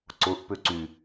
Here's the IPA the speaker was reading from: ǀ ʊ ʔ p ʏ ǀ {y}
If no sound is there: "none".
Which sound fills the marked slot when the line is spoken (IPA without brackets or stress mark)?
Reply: y